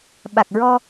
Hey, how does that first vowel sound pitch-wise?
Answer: low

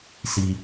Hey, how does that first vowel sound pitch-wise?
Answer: low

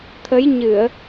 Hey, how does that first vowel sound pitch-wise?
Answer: rising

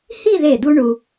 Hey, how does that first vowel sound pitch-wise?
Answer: falling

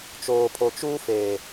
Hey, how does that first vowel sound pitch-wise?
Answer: low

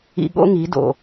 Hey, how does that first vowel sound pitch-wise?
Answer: low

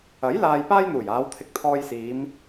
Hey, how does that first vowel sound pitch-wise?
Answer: rising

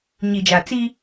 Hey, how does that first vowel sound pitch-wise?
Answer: low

